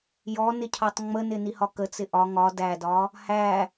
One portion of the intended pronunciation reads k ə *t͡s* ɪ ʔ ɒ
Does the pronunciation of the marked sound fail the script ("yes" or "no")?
no